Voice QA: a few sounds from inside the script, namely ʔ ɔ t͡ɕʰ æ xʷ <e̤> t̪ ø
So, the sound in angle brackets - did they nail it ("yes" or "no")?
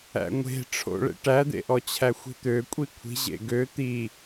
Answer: no